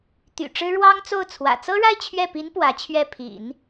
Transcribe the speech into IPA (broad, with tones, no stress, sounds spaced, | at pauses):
t̪ y̰˨˩ ʈ͡ʂ ɻ̩˥ ɻ w ɑ˥ ŋ t͡s o˥˩ ʊ̯ t͡sʰ w ä̰˨˩ t͡s ɤ˥ ɻ a˥˧ ɪ̯ t͡ɕʰ ɥ ɛ˥˩ p i˧˥ n p w ä˧˥ t͡ɕʰ ɥ ɛ˥˩ pʰ ḭ˨˩˦ n